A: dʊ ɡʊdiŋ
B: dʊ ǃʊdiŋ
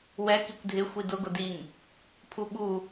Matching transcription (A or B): A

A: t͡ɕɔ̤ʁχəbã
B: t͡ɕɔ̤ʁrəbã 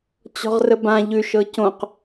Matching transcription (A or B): B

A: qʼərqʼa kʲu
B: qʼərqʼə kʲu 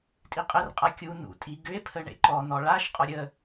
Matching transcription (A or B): A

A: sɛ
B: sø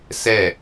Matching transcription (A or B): A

